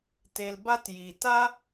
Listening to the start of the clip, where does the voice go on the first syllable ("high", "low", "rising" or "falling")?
low